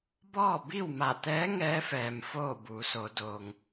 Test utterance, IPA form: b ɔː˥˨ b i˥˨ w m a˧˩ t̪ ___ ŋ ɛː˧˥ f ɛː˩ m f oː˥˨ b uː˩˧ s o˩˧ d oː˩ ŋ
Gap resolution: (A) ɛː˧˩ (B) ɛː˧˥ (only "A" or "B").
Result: B